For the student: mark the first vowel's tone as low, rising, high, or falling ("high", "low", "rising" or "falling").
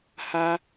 high